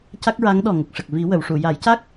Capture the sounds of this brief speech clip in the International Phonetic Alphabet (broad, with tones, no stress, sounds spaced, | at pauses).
c a˦˥ k̚ ɹ a˧˥ ŋ ɗ ɔ˨˩ ŋ ə˨˩ k̚ ʂ ə˨˩ k̚ v i˨˩˦ w ə˨˩˨ w ʂ u˨˩˨ j a˨˩˦ j c a˦˥ k̚